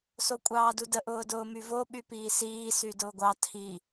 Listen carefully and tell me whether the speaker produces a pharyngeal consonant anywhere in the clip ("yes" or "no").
no